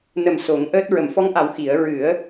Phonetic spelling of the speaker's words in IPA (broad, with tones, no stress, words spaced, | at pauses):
nə˨˩m so˨˩˦ŋʔəː˦˥t̚ ɹə˨˩˨mfɔ˧˥ŋʔa˨˩˦w xi˨˩˦ə̯ ɹɨ˨˩˦ə̯